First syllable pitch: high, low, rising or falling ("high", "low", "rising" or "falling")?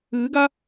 rising